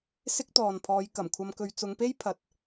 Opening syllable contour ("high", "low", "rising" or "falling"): high